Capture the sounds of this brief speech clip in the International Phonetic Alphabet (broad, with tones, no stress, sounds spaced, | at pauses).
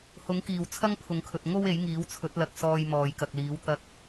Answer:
h ʊ˨˥ ŋ k iː˨˩ w t͡sʰ ɐ˥ ŋ pʰ ʊ˨ ŋ kʰ ɵ˨ t̚ ŋ o˧ w e˨˥ j ŋ iː˨˥ w t͡sʰ ɵ˨˥ t̚ l ɐ˨˥ k̚ s ɔː˧ j m ɔː˨ j k ɐ˨ k̚ l iː˨˥ w t̪ ɐ˥ k̚